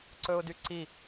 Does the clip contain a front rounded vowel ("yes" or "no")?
yes